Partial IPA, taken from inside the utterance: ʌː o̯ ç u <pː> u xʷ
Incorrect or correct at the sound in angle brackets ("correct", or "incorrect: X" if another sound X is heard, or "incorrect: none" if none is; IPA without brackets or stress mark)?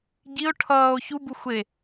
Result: incorrect: b